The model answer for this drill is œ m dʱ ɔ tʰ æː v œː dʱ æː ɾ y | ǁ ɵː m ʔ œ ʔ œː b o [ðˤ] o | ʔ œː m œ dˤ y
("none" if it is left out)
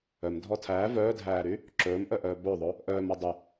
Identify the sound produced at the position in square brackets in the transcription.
ðˤ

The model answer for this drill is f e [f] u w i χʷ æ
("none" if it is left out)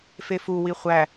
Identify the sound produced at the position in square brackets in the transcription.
f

